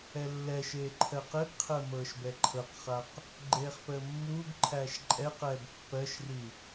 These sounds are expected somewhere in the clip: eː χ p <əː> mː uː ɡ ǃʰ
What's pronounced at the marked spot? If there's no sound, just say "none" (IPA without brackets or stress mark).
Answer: əː